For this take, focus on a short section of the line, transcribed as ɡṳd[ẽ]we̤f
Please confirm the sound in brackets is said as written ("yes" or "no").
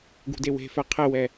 no